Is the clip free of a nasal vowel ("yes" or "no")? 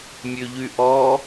yes